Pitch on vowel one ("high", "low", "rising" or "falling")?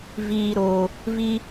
low